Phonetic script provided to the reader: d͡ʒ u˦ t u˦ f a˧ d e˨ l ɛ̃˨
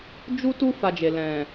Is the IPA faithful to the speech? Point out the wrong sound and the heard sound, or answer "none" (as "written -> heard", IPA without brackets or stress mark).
d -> d͡ʒ